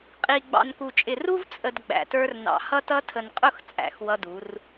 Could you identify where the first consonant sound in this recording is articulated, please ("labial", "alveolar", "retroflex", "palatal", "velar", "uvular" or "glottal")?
uvular